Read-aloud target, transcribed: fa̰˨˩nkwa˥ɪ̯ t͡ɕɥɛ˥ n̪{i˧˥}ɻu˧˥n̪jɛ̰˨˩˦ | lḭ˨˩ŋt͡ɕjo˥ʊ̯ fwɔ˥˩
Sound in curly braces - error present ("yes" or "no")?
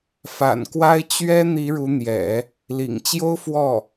no